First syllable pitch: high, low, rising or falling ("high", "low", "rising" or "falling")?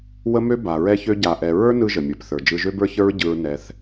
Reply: high